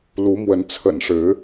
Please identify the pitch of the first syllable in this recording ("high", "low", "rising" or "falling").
rising